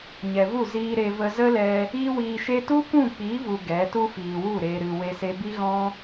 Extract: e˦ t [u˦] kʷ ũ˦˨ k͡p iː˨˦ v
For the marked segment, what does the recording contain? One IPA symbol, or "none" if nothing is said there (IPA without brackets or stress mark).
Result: u˦